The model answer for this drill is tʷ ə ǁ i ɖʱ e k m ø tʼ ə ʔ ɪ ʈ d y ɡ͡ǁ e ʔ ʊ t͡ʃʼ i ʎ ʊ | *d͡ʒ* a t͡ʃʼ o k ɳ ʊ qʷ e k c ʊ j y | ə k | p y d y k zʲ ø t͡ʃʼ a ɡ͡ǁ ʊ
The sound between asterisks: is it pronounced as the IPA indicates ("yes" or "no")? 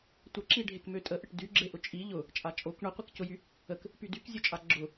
no